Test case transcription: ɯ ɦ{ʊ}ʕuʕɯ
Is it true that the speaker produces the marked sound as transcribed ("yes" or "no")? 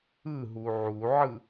no